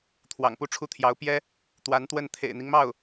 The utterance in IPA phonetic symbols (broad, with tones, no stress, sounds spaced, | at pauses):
t̪ʰ w ɑ̰˨˩ ŋ p u˥˩ ʈ͡ʂʰ u˥ t̪ʰ j ɑ˧˥ ʊ̯ p j ɛ˥ | t̪ w a˧˥ n t̪ w ə˥˩ n t̪ʰ ḛ˨˩ ɪ̯ n̪ i˦ ŋ m ɑ˥˩ ʊ̯